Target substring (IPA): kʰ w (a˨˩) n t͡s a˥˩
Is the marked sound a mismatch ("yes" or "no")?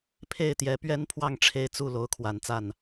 no